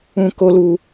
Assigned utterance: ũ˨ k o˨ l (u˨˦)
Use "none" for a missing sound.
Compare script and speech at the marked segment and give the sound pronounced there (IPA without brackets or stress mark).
u˨